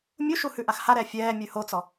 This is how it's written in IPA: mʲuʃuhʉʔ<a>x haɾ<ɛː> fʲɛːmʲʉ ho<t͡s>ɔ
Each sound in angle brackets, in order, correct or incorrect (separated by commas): correct, incorrect, correct